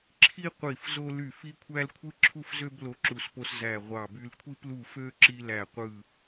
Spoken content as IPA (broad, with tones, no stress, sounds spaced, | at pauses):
ǁʰ i˥ qʷ i˦˨ f z o˥ l y˦˨ f i˥ kʷʰ æ˥ l kʷʰ ɯ˥ ǁʰ u˥ f z ø˥ b l o˥ ǁ u˦˨ s p o˥ s z æ˦˨ ʁʷ ɑ˦˨ b y˥ l kʷʰ i˥ p l u˦˨ f ø˥ ǁ i˥ l æ˦˨ qʷ ɯ˦˨